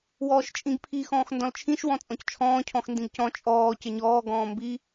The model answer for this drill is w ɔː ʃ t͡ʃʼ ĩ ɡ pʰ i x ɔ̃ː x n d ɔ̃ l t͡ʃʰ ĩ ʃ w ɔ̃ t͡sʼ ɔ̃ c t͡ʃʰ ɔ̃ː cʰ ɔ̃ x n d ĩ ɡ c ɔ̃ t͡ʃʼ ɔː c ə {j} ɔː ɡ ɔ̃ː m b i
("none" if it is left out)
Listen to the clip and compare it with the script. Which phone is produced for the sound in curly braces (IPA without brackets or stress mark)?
ɲ